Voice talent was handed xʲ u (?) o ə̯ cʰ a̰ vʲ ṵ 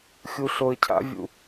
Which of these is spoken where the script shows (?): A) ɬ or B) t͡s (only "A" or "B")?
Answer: A